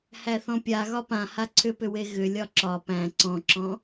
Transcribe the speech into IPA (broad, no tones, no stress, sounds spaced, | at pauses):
h æ θ ɔ̃ pʲ a ɣ ɒ p ã h a ǀʰ ʏ p ʏ w e ɣ ʏ lʲ ɒ ǁ ɒ p æ̃ ǀ ɔ̃ ǁ ɔ̃